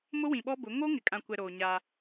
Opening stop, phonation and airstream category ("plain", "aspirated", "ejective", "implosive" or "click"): implosive